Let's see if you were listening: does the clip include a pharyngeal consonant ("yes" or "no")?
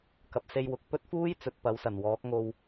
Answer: no